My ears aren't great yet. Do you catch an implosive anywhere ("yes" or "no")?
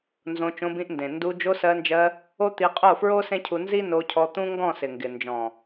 no